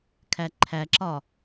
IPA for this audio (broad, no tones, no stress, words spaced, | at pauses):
kʰæǃʰæǁɒ